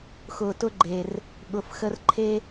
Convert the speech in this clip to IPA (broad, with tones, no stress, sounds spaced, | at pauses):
x ʊː˨ t ʊ˦ ɡ͡ǃ e˨ r | ɠ ʊ˨ f x ə˦ r ǃʰ e˦